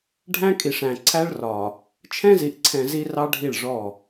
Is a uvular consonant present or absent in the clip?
absent